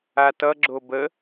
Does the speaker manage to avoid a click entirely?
no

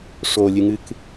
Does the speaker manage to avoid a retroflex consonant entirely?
no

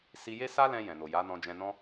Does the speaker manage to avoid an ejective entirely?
yes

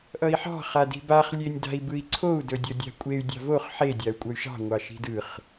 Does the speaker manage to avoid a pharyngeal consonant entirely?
no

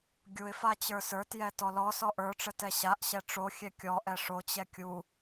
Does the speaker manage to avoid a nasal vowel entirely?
yes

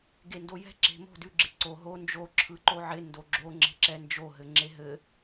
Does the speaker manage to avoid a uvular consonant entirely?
yes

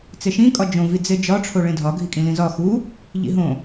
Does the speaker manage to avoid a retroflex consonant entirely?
no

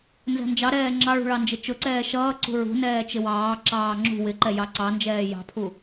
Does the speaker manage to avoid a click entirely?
no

